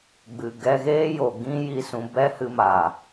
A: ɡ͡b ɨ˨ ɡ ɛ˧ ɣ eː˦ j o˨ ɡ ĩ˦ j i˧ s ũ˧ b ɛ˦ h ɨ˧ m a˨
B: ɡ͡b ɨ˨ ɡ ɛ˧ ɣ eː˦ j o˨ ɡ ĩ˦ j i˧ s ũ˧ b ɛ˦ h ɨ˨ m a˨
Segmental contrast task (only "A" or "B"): A